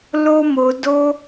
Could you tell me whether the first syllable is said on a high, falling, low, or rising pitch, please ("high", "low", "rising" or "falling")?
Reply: high